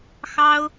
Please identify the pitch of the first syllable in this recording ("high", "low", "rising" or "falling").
high